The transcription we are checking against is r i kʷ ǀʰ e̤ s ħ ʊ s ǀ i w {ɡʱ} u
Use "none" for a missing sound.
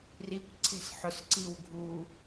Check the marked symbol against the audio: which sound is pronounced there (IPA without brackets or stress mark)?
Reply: ɡʱ